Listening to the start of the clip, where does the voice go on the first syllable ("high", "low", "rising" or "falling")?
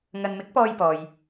low